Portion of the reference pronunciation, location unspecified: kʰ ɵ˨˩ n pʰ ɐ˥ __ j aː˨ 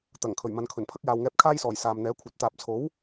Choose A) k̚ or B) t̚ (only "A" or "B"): A